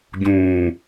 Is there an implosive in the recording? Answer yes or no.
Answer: no